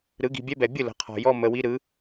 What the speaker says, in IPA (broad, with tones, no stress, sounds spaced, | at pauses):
ɾ ɯ˩˥ ɡ i̤˨ bʲ ɛ˦ b ɛ˨ bʲ ɯ˥˩ l ə̤˩˥ qʰ ɔ̤˨ j ɔ˦ m ə˨ w i˦ ɾ ɯ˩˥